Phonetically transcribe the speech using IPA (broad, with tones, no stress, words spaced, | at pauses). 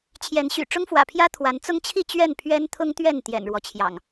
t͡ɕʰjɛ˨˦nɕy̰˨˩ ʈ͡ʂʊ˦ŋfwä̰˨˩pʰjä˦ t̪ʰwa˨˦nt͡sʊ˦ŋt͡ɕʰi˥˨ t͡ɕɥɛ˥˨npʰɥɛ˦nt̪ʰʊ˦ŋt̪ɥɛ˥˨n t̪jɛ̰˨˩nɻwɔ˦t͡ɕʰjɑ̰˨˩ŋ